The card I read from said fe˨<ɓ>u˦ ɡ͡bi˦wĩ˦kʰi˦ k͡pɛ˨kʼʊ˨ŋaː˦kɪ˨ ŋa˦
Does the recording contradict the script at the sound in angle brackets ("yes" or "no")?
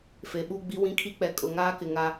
no